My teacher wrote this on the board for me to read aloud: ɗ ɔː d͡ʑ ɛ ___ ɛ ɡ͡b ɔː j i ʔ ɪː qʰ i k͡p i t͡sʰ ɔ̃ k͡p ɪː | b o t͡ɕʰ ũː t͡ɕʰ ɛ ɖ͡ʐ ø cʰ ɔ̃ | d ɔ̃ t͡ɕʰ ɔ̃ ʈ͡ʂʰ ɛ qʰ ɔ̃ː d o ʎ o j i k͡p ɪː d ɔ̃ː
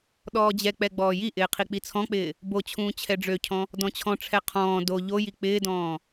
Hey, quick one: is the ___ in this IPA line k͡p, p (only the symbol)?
k͡p